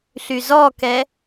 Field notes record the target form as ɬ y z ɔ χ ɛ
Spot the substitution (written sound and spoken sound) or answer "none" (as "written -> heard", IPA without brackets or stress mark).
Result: χ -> k